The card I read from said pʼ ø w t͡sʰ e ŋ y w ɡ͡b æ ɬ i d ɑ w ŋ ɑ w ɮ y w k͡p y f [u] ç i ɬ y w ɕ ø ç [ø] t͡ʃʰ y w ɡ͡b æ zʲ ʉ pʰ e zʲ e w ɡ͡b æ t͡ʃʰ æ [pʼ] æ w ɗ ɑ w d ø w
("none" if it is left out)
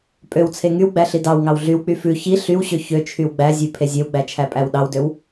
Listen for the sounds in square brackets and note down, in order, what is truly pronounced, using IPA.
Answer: ʉ, ø, pʼ

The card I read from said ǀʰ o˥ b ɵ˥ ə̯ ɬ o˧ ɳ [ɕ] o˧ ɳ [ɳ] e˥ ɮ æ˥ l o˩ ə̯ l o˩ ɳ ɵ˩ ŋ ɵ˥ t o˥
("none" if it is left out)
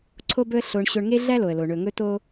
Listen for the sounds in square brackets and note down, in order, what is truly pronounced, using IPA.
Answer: ɕ, ŋ

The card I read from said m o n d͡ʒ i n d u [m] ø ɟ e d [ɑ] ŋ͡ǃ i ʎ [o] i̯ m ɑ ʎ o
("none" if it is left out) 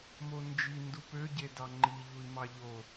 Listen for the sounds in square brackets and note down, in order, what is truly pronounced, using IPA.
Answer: p, ɑ, u

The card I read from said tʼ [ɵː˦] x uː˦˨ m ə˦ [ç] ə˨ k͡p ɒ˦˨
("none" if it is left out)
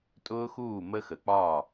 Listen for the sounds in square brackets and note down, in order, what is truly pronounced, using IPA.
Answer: ʊː˦, x

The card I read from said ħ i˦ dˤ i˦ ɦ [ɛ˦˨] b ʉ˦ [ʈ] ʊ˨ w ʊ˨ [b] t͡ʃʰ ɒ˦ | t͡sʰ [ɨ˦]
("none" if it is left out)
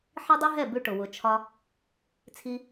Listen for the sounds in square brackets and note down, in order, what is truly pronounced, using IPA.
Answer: ɛ˦˨, ʈ, none, i˦

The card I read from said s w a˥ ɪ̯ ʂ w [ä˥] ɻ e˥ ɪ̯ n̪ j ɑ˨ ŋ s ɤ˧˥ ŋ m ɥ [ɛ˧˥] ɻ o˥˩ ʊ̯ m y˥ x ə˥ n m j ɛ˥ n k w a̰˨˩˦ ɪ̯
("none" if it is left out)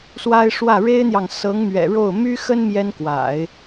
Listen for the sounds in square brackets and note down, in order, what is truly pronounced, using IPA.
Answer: ä˥˩, ɛ̰˨˩

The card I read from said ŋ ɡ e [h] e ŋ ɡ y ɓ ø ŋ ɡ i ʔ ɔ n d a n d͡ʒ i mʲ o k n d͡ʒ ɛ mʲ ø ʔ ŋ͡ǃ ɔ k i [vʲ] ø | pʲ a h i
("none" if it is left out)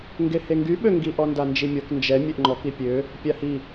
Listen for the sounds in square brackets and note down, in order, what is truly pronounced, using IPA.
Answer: h, pʲ

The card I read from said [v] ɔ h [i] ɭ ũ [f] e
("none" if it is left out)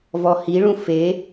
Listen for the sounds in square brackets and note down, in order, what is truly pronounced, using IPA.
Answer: v, i, f

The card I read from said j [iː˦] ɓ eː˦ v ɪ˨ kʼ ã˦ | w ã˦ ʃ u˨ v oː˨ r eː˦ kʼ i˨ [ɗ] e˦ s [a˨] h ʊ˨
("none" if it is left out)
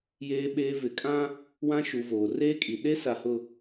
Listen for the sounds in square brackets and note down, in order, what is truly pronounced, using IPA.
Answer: eː˦, ɗ, a˨

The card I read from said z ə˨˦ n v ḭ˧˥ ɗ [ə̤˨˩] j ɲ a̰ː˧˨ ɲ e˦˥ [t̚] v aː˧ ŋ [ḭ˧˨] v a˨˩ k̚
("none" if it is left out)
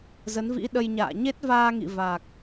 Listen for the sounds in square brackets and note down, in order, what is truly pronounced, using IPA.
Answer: ə˧, t̚, ḭ˧˨

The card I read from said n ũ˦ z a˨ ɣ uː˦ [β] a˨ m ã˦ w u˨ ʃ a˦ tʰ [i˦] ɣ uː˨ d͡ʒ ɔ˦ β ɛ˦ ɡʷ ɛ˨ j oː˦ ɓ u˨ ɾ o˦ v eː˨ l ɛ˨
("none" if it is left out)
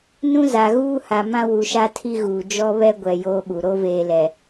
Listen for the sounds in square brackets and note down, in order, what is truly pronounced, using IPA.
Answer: h, i˦

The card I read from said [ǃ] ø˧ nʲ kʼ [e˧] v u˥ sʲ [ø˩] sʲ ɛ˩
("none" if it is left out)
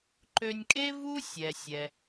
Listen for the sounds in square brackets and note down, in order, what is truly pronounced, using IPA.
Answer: ǃ, e˥, ɛ˩

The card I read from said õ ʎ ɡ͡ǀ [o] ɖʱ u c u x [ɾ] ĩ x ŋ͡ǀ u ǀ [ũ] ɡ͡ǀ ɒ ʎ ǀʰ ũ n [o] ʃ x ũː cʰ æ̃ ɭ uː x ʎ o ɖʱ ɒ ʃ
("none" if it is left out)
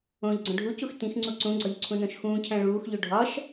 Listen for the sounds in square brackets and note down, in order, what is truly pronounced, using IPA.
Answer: õ, t, ũ, õ

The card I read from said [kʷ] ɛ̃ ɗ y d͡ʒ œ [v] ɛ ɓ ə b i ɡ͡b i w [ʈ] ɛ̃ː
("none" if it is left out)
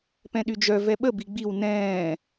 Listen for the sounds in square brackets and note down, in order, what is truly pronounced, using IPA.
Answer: p, v, n

